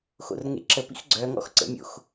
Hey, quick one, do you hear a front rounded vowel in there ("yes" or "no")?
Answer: yes